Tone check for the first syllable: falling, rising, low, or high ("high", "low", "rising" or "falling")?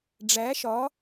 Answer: rising